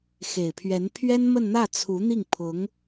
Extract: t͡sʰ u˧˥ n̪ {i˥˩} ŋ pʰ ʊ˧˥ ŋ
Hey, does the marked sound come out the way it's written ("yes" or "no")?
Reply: yes